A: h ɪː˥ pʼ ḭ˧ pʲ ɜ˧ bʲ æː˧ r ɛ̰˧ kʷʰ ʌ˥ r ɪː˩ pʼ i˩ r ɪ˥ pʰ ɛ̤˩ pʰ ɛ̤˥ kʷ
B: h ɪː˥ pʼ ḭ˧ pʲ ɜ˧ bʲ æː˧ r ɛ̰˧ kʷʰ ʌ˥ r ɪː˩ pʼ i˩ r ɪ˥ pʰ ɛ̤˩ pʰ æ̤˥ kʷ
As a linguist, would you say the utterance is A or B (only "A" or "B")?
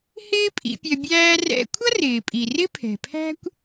B